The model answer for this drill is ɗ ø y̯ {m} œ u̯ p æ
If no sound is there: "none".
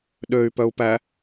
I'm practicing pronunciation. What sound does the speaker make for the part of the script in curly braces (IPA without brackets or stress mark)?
p